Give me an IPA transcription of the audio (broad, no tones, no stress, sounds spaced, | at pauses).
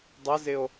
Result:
dˤ ə z ɪ o̯